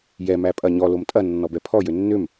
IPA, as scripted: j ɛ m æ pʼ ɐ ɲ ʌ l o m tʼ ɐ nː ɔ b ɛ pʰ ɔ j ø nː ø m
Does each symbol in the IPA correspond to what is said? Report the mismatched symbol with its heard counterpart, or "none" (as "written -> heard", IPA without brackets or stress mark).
ʌ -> ɔ